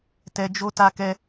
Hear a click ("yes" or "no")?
no